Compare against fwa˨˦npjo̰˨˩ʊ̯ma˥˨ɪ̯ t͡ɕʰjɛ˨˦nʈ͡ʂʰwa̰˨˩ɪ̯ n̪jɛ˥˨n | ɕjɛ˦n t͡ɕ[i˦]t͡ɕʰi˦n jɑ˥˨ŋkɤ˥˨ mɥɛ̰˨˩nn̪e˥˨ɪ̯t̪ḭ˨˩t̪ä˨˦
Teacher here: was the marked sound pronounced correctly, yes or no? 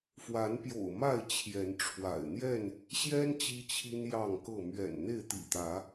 yes